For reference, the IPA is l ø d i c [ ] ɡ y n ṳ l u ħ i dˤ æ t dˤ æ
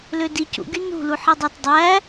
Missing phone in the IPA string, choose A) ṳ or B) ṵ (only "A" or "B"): B